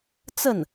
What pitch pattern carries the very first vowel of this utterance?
falling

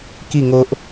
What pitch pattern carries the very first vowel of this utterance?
falling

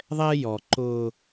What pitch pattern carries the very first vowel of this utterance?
high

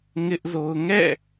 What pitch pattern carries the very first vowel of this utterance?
high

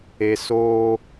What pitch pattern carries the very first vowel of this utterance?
low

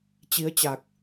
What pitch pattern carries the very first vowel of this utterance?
rising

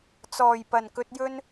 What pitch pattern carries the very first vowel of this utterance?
low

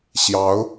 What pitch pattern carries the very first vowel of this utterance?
rising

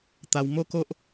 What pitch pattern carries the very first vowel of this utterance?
high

